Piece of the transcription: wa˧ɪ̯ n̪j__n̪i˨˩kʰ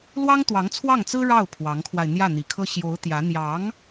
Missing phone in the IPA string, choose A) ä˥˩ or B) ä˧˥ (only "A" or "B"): A